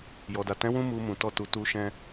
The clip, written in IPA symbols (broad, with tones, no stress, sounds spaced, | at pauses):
j ɔ˨ d a˨ t ɛ̃˨˦ w ũ˧ m u˧ m ũ˨ t ɔ˧ t u˨ t u˧ ʃ ɛ̃˧